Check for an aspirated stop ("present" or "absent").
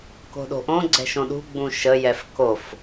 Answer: absent